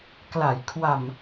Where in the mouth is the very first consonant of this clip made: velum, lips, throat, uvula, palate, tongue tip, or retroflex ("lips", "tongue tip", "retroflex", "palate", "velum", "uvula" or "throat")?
velum